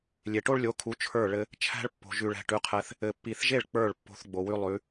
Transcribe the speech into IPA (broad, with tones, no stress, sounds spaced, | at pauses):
lʲ e˨ ʈ o˦ ɭ lʲ o˨˦ kʰ u˨˦ t͡ʃʰ ə˞˦˨ ɭ ɘ˧ | t͡ʃʰ æ̤˦ ɭ pː o̤˨ ʒ ʉ˨ ɭ ɛ̤˨ ʈ ʉ˨˦ qʰ ɛ˧ θ | ɘ˨ pː i˨ θ ʒ e˦˨ ɭ k͡p ə˞˦˨ ɭ pː o̤˧ θ ɡ͡b o˨ w ʉ˦ lˠ ʉ˨˦